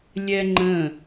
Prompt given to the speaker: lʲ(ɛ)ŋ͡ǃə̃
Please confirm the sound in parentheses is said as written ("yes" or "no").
yes